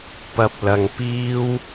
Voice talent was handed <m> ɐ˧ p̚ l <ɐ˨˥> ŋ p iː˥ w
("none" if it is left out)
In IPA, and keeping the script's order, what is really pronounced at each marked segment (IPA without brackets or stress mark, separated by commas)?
p, ɐ˧